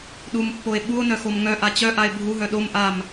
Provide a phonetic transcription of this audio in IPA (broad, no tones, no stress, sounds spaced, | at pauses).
ɗ u m pː o e̯ ɓ u o̯ n œ x o m ŋ œ ʔ a t͡ɕ œ ʔ a e̯ bʱ u ɦ œ ɗ o m ʔ a m